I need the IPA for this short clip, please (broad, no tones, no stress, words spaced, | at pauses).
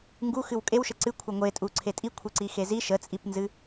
ŋɡu xɨwkʼewʃə ǀɨ kʷʰəŋʷetʼu ǀʰetʼi kʷʰeǀixezi ʃət͡sʼipnzɨ